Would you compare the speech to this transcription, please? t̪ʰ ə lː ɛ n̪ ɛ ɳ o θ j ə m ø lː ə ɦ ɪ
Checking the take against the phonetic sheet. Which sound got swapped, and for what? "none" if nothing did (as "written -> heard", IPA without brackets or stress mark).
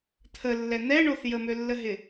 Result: none